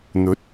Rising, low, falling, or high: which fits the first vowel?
rising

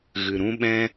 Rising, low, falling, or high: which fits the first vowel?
low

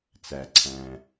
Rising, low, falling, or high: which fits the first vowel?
low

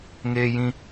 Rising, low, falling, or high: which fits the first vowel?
high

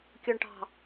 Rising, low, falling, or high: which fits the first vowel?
low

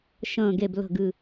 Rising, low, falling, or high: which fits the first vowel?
low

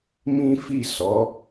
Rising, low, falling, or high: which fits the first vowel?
high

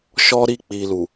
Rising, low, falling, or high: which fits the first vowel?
high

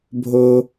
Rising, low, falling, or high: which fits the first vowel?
high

